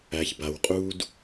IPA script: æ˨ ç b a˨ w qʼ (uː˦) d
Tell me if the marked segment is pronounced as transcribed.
yes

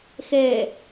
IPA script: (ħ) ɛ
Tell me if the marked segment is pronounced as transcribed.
no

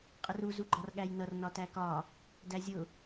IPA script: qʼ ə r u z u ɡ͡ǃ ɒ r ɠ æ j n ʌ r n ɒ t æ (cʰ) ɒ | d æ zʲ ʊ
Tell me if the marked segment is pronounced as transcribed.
no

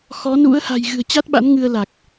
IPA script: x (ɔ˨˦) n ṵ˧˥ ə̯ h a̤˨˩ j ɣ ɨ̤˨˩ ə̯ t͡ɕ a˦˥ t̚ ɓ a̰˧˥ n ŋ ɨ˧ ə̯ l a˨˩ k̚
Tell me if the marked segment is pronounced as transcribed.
yes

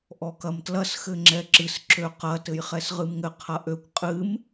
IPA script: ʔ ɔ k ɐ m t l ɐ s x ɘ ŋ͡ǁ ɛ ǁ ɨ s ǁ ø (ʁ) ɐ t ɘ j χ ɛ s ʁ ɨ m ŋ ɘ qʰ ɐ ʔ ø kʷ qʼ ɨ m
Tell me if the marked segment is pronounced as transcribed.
no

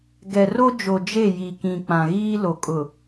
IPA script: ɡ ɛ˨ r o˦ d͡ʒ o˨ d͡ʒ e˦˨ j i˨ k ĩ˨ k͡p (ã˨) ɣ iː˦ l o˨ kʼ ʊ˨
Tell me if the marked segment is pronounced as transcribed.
yes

